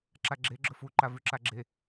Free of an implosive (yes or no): yes